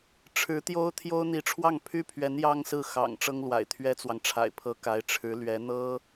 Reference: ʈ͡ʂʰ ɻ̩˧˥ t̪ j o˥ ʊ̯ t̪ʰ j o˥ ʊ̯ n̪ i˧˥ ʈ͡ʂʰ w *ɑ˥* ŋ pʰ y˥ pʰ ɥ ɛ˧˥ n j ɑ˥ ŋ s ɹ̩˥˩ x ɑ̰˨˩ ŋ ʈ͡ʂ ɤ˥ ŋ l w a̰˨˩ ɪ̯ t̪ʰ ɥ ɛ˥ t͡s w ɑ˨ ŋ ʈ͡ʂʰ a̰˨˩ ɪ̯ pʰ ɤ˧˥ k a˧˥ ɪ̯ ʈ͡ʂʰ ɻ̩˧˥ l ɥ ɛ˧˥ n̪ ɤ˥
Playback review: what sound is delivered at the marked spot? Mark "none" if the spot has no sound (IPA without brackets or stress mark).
ɑ˥˩